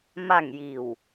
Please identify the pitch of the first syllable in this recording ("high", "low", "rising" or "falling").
falling